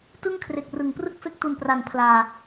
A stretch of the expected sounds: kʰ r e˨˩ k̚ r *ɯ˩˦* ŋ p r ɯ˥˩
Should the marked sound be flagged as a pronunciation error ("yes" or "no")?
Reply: no